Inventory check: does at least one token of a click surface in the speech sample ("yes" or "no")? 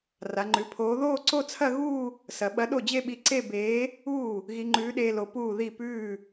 yes